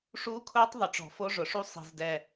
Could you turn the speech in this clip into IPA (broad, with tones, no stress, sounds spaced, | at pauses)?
ʂ uː˦˥ kʰ ʊː˦˥ tˤ ðˤ ʊ˨˩ ʈ͡ʂ ɔ̤˨˩ f o˦˥ ʐ ʊ˨˩ ʂ u˦˥ sˤ i̤˨˩ z d ɛ˨˩